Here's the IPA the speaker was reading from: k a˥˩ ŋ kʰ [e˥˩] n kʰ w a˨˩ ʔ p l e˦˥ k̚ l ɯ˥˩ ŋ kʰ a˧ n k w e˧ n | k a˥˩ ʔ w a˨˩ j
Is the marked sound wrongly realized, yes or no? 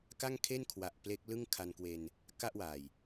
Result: no